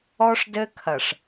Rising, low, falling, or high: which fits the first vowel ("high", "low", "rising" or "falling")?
high